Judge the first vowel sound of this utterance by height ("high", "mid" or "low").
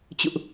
high